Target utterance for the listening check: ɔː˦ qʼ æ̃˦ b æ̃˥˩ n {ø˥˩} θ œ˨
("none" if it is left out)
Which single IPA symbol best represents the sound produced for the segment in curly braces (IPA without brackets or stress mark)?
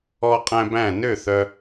ø˥˩